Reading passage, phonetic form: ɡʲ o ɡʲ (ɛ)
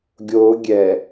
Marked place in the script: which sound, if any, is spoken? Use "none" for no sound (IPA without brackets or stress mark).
ɛ